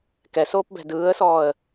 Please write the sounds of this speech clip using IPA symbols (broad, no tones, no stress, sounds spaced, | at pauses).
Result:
k ɛ s oː p b ɛ̤ d ɯː ə̯ s ɔː ə̯